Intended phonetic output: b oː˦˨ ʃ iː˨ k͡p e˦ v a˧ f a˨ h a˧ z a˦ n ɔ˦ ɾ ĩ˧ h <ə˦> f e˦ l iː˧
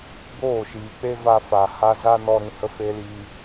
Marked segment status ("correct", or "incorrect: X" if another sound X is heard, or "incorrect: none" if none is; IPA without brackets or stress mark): correct